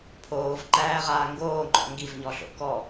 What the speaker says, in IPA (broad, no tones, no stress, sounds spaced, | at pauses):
pʰ oː v ǃ æː ʁ aː ŋ ɡ oː ŋ͡ǃ ɔ̰ ŋ ɡ i v ɲ ɔ ɬ o̰ k ɔ